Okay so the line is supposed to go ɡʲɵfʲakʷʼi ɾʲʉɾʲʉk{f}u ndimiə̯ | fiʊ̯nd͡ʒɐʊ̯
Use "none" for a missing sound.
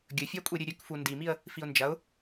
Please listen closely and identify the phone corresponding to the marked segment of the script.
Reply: f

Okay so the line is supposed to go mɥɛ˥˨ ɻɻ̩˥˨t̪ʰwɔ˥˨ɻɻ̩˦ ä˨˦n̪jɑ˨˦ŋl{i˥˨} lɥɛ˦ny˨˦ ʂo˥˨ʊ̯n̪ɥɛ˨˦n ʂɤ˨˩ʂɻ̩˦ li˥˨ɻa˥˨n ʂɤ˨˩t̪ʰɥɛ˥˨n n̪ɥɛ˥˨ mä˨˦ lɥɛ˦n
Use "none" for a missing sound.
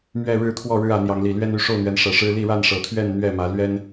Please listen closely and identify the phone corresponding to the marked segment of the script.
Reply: i˨˩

